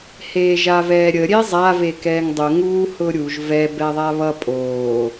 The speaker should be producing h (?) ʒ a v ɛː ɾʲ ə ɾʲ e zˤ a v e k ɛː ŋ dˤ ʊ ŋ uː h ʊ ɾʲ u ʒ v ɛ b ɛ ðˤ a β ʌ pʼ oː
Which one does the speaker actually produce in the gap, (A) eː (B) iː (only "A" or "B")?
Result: A